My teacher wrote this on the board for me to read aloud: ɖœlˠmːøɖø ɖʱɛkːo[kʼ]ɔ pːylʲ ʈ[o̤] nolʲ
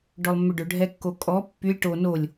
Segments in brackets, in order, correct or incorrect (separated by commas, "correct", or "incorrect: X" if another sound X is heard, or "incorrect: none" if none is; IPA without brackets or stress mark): correct, incorrect: o